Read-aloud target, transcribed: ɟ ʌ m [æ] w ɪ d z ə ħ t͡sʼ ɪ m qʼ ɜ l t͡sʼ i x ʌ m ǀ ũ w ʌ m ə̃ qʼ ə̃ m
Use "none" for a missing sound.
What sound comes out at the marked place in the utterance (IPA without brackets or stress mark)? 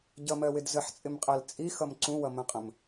ɜ